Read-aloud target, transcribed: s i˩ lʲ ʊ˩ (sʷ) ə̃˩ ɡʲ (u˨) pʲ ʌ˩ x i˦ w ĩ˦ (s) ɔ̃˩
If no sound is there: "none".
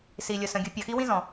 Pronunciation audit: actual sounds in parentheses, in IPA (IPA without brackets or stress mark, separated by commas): s, ʊ˨, z